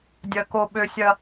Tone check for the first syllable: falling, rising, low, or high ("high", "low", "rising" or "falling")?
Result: low